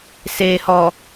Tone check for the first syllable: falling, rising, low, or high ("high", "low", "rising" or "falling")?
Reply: low